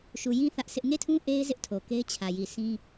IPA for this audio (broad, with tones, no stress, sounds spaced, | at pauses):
ʃ u˨ j ĩ˦ θ ä˦ ʔ s ɪ˦ ʔ ŋ e˦˨ tʰ ũ˦ ʔ e˦ ɪ̯ z ɪ˦ ʔ tʰ o˨ k e˦ ɪ̯ t͡ɕʰ ä˨ j i˨ sʰ ĩ˦